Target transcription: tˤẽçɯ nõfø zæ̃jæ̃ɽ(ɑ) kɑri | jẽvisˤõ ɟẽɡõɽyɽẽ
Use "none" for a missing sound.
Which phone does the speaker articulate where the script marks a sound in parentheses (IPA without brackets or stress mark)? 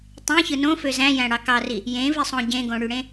ɑ